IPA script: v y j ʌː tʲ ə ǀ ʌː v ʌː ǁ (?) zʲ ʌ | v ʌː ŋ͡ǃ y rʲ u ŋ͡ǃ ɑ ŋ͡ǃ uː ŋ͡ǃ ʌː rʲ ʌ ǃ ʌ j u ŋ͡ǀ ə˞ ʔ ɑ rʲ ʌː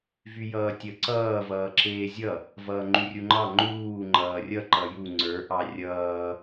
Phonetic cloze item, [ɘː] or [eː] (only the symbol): eː